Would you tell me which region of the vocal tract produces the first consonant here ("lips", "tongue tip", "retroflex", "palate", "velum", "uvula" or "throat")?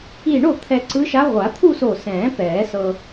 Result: retroflex